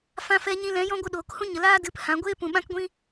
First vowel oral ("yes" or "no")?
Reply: no